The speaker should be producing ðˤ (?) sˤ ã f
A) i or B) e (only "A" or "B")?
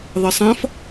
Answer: B